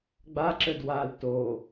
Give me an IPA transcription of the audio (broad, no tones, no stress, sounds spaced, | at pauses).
ɡ͡b a ǁ ɘ d w a l t o